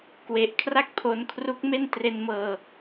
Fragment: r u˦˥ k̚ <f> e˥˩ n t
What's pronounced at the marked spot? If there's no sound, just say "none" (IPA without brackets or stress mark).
m